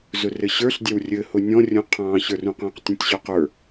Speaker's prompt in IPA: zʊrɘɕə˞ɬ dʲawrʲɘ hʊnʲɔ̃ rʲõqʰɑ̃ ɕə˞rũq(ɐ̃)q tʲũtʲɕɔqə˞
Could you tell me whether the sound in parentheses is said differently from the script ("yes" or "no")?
yes